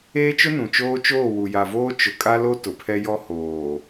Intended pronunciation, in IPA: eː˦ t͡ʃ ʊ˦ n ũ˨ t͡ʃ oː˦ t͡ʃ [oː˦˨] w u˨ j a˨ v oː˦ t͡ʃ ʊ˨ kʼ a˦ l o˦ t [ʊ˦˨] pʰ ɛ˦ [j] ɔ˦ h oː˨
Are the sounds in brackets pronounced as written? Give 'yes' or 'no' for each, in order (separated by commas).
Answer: yes, no, yes